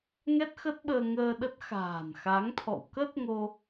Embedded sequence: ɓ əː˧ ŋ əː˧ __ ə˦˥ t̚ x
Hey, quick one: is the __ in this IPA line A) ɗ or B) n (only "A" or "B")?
A